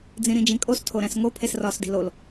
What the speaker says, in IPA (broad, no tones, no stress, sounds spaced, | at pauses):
d͡z ĩ ɾ ĩ d͡ʒ ĩ kʼ o s tʰ o ɾ æ̃ s ŋ o pʰ e s r ɒː s d i̤ l o l